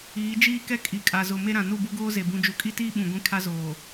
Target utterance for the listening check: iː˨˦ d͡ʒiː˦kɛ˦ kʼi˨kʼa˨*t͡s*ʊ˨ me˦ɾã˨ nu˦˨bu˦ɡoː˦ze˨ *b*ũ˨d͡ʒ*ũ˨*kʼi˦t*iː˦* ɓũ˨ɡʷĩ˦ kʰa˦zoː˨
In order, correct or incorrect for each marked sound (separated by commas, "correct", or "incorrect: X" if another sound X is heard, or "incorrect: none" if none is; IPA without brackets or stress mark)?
incorrect: z, correct, incorrect: u˨, correct